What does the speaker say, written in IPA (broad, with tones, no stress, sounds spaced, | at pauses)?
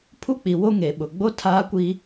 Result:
pʰ u˦ k͡p i˨ w o˦ ŋ e˨ ɓ ʊ˨ ɡ͡b o˦ tʰ aː˦ kʷ i˦